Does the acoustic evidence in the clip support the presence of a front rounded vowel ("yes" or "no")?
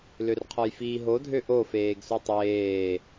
yes